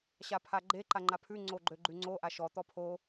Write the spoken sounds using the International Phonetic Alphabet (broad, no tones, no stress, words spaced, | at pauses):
ɕapʰaɡ͡ǃe ǃaŋ͡ǃapʰʉ ŋ͡ǀoɡ͡ǃøɡ͡ǃʉŋ͡ǀo ʔaʃɔ t̪ɔpʰo